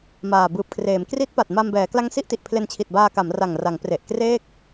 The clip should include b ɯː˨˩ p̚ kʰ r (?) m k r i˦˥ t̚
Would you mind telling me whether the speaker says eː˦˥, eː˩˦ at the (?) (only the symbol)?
eː˩˦